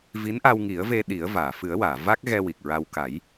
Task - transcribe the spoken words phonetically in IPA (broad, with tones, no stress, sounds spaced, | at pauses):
v i˧˥ n ʔ a˧ w ŋ i˨˩˦ ə̯ v e˧ ɗ i˨˩˦ ə̯ v aː˨˩˨ f ɨ˨˩˦ ə̯ w aː˨˩˨ v a˦˥ k̚ ɣ ɛ˧ w i˨˩ k̚ ɹ a˧ w k a˨˩˦ j